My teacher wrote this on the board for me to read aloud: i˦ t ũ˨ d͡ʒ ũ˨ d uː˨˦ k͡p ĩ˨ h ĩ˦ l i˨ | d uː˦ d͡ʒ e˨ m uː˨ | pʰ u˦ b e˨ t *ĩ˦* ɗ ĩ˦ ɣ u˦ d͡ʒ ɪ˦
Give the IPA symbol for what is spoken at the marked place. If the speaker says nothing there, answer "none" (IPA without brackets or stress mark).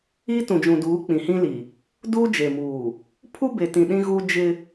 ĩ˨